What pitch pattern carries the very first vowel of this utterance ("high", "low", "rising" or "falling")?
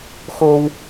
high